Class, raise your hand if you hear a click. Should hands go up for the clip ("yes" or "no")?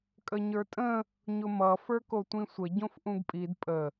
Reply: no